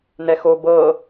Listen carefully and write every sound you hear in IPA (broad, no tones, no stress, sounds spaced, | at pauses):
n ɛ x o b ɤ